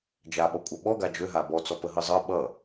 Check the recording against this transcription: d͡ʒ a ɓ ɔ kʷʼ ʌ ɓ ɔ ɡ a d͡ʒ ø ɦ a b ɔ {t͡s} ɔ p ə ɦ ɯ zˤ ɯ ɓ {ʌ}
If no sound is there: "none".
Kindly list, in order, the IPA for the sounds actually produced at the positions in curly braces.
t͡s, ʌ

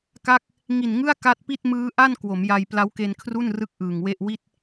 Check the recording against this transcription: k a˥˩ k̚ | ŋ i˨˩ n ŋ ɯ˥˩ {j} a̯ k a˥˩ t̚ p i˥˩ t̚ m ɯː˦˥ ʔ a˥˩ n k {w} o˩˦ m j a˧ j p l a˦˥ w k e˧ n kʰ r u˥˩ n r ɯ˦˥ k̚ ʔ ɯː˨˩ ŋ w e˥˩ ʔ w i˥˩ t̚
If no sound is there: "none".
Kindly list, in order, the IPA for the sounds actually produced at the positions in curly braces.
none, w

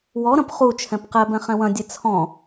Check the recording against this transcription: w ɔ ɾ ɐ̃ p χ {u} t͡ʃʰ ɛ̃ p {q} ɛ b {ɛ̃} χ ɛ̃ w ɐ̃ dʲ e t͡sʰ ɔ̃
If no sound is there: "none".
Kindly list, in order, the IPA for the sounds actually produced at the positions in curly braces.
u, q, ɛ̃

